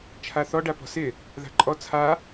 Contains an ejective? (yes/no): yes